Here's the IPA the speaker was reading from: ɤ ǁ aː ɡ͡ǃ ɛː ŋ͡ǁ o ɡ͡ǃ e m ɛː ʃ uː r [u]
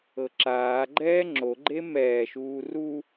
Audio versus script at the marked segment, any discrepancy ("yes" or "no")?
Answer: no